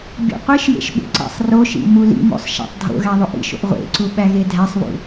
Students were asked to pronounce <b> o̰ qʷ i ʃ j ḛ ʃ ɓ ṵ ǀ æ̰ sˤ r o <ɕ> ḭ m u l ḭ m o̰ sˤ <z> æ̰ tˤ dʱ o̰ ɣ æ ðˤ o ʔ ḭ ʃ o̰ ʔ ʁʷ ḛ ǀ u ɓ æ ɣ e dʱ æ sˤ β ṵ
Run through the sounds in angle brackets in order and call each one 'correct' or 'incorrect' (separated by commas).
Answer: incorrect, incorrect, incorrect